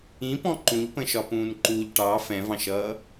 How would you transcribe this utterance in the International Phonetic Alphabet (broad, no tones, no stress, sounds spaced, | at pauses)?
ĩ p ɔ̃ ǃ ũ ʎ p ə̃ ʃ ɒ p ũː n ǃ u ʎ ʈ ɑ f ɛ̃ v ɑ̃ ʃ ʌː